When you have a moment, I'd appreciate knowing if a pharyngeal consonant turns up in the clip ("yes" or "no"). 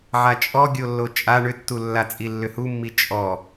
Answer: yes